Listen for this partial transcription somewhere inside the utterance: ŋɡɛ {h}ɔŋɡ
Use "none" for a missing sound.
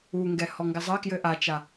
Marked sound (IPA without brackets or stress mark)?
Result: h